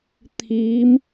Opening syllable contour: rising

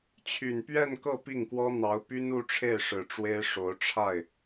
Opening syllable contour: low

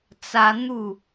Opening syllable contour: high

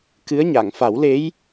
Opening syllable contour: rising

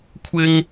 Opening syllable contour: high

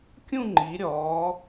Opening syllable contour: falling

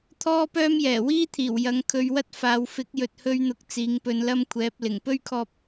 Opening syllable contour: high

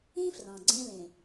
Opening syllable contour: high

